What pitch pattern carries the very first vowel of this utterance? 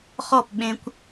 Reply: falling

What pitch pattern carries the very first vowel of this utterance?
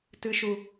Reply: low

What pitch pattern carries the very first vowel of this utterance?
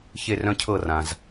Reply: falling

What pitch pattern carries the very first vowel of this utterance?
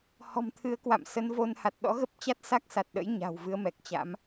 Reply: low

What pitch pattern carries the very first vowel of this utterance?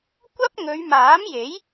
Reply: high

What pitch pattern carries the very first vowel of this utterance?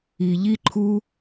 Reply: low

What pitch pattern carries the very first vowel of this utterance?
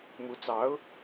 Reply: rising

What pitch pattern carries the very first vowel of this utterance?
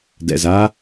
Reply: low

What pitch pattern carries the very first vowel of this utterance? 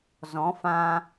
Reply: rising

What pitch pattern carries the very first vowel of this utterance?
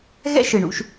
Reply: high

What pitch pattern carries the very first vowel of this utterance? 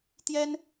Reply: high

